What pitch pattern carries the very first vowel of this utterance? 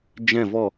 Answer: falling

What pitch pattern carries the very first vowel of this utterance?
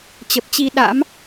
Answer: low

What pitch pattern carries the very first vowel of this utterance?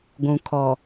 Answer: low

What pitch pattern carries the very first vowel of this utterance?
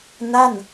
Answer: falling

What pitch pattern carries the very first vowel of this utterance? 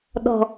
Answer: low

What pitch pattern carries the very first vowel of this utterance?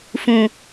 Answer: low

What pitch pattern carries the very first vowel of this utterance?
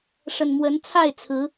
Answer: low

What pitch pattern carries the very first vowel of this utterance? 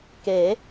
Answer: rising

